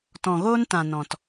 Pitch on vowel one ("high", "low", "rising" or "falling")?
low